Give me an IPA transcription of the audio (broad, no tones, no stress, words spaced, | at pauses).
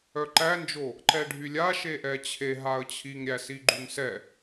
œǃænd͡ʒo | ǃɛɖʱylʲa ʃeʔɛt͡ɕʰe ɦaə̯t͡ɕʰiŋɾʲæsi ɡ͡ǃyŋsɛ